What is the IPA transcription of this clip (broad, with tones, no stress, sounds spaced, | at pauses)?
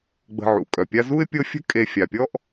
ɡ͡b ə̤˨ ʕ ṵ˩ kʼ œ˩ pʲ a˦ z u˥ ɪ̯ pʲ ɤ˦ fʲ ə̤˥ kʼ e˨ fʲ a˩ pʲ ɔ˥ ʔ